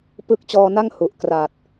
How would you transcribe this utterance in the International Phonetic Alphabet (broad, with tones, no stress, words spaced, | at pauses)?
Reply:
pɯ˦˥k̚t͡ɕɔː˧na˥˩ŋ hu˨˩ʔ kra˨˩t̚